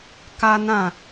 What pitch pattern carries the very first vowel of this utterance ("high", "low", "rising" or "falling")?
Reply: high